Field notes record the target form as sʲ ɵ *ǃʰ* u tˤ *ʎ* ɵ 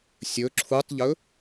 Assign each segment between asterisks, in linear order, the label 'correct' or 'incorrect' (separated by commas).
incorrect, correct